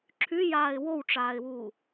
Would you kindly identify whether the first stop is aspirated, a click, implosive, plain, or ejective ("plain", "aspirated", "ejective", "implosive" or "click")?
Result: click